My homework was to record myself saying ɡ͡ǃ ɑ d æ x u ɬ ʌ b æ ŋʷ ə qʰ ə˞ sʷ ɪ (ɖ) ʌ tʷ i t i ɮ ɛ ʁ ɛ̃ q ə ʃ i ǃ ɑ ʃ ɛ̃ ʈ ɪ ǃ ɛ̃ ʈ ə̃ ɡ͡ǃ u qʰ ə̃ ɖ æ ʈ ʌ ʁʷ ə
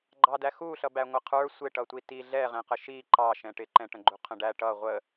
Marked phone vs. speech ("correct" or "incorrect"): incorrect